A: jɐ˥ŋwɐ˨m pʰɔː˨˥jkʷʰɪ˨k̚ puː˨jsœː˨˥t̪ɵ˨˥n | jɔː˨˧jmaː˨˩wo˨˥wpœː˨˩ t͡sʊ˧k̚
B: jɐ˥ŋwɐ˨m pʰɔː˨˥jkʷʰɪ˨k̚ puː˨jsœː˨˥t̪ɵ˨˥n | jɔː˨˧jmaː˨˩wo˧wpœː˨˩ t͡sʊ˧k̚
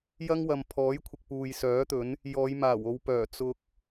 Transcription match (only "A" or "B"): B